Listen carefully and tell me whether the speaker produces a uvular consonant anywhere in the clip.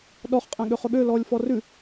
yes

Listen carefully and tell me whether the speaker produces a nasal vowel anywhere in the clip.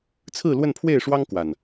no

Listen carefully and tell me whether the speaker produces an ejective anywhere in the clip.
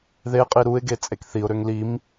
yes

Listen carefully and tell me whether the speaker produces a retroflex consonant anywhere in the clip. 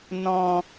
no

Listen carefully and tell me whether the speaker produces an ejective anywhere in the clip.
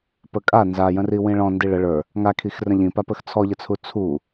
yes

